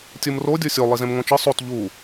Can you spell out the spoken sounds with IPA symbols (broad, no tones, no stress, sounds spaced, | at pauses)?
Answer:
tʲ ɯ m r o dʲ o sʲ o lˠ i z ẽ m ŋ õ t͡ʃ ɯ sˤ o t ʎ u